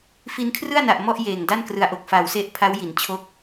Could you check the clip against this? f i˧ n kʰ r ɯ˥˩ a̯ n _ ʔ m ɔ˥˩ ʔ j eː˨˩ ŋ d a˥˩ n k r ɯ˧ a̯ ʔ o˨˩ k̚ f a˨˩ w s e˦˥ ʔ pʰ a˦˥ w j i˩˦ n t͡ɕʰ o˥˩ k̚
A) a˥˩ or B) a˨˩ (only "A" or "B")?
B